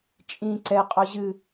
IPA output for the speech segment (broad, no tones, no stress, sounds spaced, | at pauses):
t͡ʃʼ ĩ ǀ ɛ qʼ ɔ ʑ ɨ